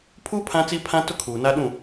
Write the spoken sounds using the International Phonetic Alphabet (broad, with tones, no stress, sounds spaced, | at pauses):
pʰ uː˦ pʰ ã˦ t͡s i˦ pʰ ã˦ t ʊ˦ kʰ uː˨ n a˦ ɗ ũ˦˨